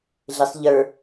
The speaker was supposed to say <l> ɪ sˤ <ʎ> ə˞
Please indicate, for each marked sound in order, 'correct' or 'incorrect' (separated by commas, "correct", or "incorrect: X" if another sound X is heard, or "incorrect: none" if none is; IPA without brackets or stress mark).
incorrect: ɮ, correct